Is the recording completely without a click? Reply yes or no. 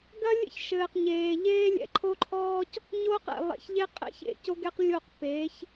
no